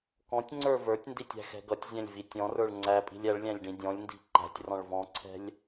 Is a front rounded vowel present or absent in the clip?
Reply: absent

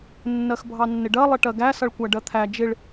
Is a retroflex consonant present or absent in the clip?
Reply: present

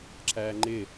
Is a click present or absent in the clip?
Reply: present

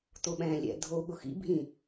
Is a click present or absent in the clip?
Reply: absent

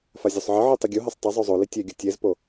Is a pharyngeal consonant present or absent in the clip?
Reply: present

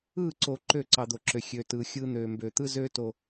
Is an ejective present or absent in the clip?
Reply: absent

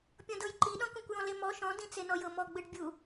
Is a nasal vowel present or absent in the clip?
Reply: present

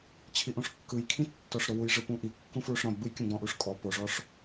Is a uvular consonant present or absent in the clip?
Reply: absent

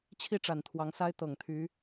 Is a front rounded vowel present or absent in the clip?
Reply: present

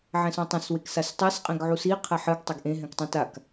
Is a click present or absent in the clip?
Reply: absent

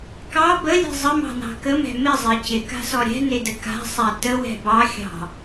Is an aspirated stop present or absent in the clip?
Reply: absent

